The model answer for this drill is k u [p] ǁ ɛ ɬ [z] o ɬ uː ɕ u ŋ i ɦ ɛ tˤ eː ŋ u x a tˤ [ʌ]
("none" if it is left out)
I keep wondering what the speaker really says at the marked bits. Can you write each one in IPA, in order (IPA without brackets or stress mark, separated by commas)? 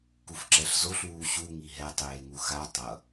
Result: f, z, ʌ